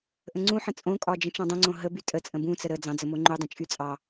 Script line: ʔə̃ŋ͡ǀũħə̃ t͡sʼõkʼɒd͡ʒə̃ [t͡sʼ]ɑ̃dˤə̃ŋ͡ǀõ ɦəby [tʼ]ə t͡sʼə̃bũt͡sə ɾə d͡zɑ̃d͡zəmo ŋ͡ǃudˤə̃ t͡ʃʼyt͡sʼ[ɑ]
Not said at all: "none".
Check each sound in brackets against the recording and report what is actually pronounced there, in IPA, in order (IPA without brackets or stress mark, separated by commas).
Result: t͡ʃ, tʼ, ɑ